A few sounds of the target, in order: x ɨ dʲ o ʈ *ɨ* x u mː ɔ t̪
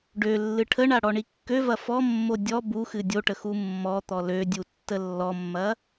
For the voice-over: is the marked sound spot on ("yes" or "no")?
no